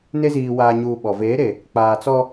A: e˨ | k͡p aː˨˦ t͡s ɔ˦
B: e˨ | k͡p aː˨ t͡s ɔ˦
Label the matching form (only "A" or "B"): B